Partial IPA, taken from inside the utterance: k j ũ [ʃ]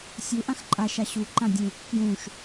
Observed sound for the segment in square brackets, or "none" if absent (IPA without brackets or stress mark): ʃ